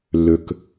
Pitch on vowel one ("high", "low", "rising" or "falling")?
low